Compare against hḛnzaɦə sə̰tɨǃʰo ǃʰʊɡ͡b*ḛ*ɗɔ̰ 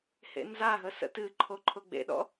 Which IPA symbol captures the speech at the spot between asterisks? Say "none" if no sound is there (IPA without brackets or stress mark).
ḛ